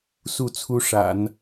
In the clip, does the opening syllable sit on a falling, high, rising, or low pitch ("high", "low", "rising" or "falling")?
falling